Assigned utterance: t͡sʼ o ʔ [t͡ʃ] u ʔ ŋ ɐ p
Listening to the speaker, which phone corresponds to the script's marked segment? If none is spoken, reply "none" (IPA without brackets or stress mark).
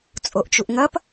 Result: t͡ʃ